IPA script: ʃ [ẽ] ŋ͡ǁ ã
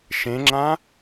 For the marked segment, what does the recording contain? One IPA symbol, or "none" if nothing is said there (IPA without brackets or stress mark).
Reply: ẽ